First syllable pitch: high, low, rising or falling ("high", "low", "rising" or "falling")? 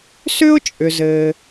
high